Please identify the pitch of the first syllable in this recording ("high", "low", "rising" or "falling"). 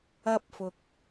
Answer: high